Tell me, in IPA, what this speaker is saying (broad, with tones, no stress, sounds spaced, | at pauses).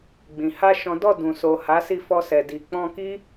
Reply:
ɡ͡b ĩ˨ h a˧ ʃ ɔ̃˦ d ɔ˦˨ d ũ˨ s o˨ h a˨˦ s i˦˨ f ɔ˧ s ɛ˨ d i˨ k͡p ɔ̃˧ k i˦